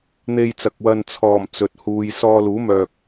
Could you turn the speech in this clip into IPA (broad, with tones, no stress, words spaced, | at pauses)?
n̪e˧jt͡sɐ˨k̚wɐ˧n t͡sʰɔː˨˩m t͡sɵ˨t̚huː˧j sɔː˧luː˨˥mœː˨k̚